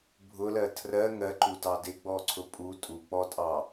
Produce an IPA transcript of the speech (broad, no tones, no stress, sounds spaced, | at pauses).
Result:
bʱ ʊ l ɜ tʰ r ɜ ŋ ɜ ǃ u t ɑ d ɪ ɡ͡b ɔ ǀʰ ʊ pʼ u tʼ u k͡p ɔ tʼ ɑ